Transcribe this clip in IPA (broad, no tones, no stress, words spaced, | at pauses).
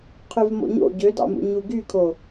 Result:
qʰyvmo̰ɲo̰ ɟødɑ̰mṵ ɲuɡykʰo